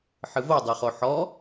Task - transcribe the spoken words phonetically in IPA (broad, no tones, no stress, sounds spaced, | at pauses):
ħ ɨ v o dˤ e χ o ħ ɔ